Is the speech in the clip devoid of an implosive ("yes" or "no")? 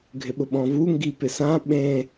no